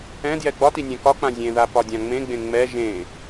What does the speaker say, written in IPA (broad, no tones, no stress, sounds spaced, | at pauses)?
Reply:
ɛ̃ d j ɛ ɡ͡b ɒ t i nʲ ɛ̃ k ɒ k͡p ã zʲ ẽ ð a p ɒ dʲ ã ŋ͡m ẽ ɡ͡b ẽ ŋ͡m ɛ ʒ ẽ